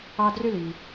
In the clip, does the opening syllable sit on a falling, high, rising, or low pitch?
high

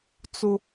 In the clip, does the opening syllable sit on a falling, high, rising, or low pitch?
high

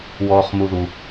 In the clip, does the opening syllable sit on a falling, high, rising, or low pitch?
low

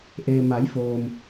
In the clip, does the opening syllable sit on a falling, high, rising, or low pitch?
low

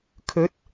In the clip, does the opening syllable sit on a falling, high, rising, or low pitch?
rising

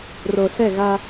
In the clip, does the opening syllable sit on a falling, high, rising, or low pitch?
low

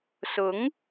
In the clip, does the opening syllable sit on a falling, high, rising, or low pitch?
rising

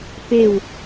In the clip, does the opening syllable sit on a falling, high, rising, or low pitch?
falling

